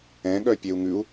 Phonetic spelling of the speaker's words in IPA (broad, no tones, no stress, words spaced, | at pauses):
ɛ̃ɠœpʲeu̯ ŋʉu̯